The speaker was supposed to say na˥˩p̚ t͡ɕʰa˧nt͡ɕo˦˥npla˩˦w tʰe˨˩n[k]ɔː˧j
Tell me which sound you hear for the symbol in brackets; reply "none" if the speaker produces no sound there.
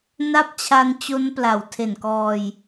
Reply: k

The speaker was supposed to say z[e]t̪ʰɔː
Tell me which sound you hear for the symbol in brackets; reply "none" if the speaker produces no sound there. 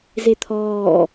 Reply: e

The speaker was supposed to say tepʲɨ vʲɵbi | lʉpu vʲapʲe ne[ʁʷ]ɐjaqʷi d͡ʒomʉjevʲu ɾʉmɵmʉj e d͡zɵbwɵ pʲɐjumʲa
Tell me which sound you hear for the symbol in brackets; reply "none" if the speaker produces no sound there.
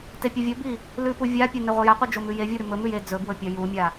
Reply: ʁʷ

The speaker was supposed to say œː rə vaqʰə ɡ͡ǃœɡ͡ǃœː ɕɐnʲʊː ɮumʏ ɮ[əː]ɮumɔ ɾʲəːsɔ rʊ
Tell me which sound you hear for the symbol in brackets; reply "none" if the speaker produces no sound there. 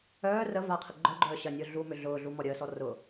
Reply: ʊː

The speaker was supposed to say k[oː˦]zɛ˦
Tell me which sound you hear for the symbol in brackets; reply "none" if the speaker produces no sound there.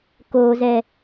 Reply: oː˦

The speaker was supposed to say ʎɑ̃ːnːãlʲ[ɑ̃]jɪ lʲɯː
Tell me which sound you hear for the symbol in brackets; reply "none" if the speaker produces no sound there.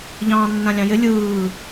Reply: ɑ̃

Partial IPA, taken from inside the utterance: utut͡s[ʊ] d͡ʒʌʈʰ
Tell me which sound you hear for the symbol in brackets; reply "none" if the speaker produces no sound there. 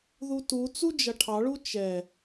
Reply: u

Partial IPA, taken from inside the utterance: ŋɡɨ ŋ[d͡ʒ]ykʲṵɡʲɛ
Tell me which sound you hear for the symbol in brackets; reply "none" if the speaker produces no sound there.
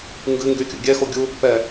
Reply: ɡ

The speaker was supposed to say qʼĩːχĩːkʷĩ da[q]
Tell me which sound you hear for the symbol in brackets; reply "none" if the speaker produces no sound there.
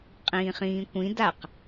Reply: q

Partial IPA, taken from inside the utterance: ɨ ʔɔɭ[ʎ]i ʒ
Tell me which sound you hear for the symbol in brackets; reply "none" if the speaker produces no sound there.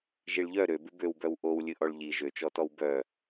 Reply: ʎ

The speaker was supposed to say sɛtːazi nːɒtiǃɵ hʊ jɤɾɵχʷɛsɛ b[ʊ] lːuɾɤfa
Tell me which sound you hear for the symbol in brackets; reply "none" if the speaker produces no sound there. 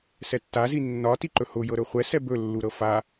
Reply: ɵ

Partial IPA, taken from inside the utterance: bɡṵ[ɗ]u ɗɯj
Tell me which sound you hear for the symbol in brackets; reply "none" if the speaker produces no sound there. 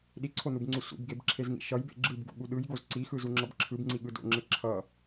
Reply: ɠ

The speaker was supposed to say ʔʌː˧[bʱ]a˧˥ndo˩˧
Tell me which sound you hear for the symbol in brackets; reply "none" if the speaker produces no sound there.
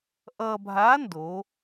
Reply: bʱ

